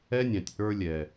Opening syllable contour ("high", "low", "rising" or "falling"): high